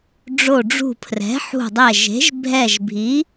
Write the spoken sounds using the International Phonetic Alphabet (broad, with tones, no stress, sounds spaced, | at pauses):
ɖ͡ʐ o˧˩ ɖ͡ʐ ṳ˧˩ pʰ r ɛ̤˩˥ ħ ṳ˧˩ dˤ ɛ˧˩ ʒ e̤˩˥ ʒ bʱ ɛ˧˩ ʒ bʱ i˩˥